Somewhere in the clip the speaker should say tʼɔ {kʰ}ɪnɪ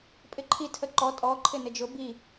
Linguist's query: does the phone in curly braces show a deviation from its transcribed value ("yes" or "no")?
yes